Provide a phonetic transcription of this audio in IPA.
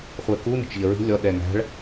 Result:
χʷ ɛ k u n ə̤ t͡ʃ ʎ ə ɹ i̤ lʲ ɔ ɗ ɛ ŋ æ̤ ɭ

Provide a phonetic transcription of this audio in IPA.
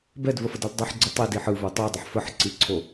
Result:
b ɛ d v ə f ə d ə l dˤ ə ħ ɡ͡ǀ ə tˤ i d i ħ ɯ v o tˤ o dˤ ə ħ f ə ħ ǀ i ǀʰ o

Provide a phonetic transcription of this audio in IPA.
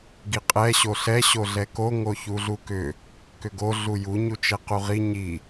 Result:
ɡ i qʼ ɛ ɕ o ɬ ɛ ɕ o ɮ ɛ k o ŋ o ç u ɮ u k ʏ | k ʏ ɡ o ɮ u j u ɲ u t͡ʃ ɛ q u ʁ i ɲ i

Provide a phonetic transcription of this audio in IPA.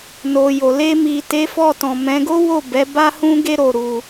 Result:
n o˨ j o˨ l e˧ m i˨ t e˨˦ f ɔ˦˨ t ɔ̃˨ m ɛ̃˨˦ ɡ o˦ w o˦˨ b ɛ˨˦ b a˦ h ũ˦ ɡ e˦ ɾ o˧ ɾ u˧

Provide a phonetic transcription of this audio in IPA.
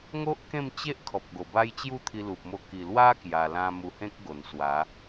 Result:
ŋ o˦ ʔ k ẽ˥˧ m t͡ɕ e˦ ʔ kʰ ɔ˨ p̚ ɡ o˨˩ b a˦ j t͡ɕ j u˥˧ t̪ʰ i˧ l u˨ p̚ m o˧ k i˨˩ l w a˦ k j a˧ l ã˦ m u˧ h ẽ˦ k̚ ɡ o˨˩ n s w a˨˦

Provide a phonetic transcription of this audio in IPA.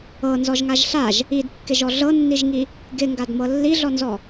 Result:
ɤ n z ɔ ʒ ŋ a ʒ ɬ a ʒ | i d kː ɪ ʒ ɔ ɮ ɤ nː i ʒ ŋ i | ɡ ɪ ŋ ɡ a d m ɤ lː i ɮ ɔ n z ɔ

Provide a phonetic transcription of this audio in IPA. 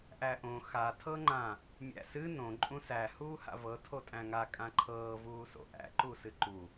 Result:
ʔ æ ʔ õ x a tʰ ɤ ŋ͡ǃ ã | mʲ æ̰ s ɨ n õ ǃʼ ũ s æ h uː h a̰ v ɤ tʰ o tʼ æ̃ ŋ a kʼ ã ǃʰ ɤː v uː s o̰ ʔ æ̰ ǃ u s ɨ ǃ u

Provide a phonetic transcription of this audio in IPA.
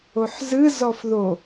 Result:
o ħ z ɨ z ɔ f ð o

